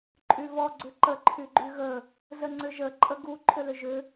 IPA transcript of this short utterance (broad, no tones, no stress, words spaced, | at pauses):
ǃʼyvɔ ɡ͡ǀʏǃə ǃʰyɡ͡ǃyɣə | zəŋ͡ǀʏʒə ǃʼəɡu ǃʼʏlʏʒʏ